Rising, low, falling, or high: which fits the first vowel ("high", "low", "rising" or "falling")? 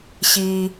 low